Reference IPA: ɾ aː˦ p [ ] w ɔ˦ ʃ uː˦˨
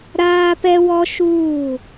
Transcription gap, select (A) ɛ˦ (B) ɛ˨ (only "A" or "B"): A